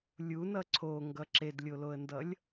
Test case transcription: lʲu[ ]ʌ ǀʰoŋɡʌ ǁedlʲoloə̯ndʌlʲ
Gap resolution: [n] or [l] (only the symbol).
n